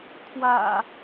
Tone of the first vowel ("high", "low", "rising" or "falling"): low